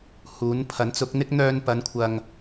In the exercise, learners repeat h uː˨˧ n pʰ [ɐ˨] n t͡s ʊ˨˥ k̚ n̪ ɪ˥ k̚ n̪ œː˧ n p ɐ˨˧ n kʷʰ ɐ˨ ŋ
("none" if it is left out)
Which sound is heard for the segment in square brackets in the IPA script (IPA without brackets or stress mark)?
ɐ˨˥